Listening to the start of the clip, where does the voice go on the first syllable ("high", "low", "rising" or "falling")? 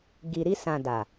low